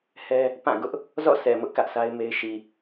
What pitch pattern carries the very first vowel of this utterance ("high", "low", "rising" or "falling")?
high